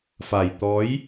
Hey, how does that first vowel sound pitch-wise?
low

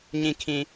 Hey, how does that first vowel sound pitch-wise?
low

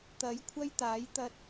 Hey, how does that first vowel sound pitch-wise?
rising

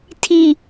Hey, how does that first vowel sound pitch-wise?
low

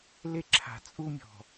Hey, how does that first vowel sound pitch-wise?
high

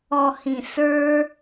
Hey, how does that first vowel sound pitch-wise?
low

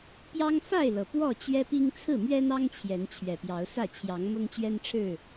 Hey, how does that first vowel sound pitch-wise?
high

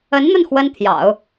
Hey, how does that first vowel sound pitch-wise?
rising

